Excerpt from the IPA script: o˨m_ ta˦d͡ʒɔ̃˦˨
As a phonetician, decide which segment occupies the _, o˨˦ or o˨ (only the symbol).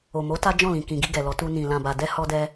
o˨˦